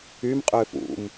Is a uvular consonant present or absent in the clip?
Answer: present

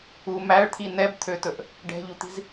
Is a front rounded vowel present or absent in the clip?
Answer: present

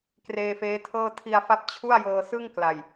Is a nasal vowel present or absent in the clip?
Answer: absent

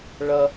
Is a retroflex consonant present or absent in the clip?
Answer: present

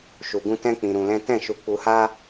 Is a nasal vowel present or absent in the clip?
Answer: present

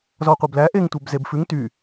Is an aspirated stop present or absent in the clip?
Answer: absent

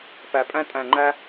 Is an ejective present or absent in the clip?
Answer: present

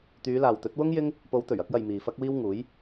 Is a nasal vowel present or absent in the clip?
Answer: absent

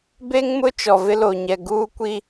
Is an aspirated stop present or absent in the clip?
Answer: absent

